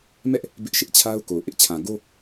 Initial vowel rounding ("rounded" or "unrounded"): unrounded